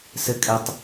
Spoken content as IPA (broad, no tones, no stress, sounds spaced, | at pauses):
s ɘ kʼ ɛ tˤ